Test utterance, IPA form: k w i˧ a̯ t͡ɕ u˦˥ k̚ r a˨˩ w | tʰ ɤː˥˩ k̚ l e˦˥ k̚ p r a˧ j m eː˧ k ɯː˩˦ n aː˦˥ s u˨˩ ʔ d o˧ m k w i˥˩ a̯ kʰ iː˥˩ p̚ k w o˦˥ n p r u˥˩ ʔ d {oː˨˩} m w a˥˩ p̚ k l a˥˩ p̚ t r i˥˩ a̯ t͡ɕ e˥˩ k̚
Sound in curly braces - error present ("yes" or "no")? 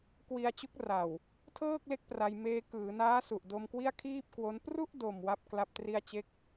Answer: yes